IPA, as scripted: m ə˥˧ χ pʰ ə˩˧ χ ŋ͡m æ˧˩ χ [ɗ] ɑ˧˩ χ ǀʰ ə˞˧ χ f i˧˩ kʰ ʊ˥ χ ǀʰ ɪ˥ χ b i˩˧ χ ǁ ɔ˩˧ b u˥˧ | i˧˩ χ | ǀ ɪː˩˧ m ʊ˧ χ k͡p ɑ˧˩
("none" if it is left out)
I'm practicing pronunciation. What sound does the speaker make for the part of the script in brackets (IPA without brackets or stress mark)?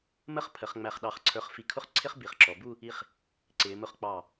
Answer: ɗ